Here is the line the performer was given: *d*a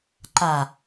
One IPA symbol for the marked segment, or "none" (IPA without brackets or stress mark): ǃ